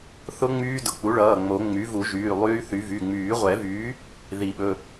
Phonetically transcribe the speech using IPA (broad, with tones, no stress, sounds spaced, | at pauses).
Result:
θ ʊ˦˥ ŋ͡m yː˦˥ d ʊ˩˧˩ k͡p u˩˥ ɭ ʌː˩˧˩ ŋ͡m o˨˩˦ ŋ͡m y˩˥ v u˨˩˦ ʒ yː˩˧˩ lˠ yː˦˥ θ y˩˥ v y˩˧˩ ŋ͡m yː˨˩˦ ʁʷ ɛ˨˩˦ v yː˩˥ | ð i˨˩˦ ɓ ɵ˩˧˩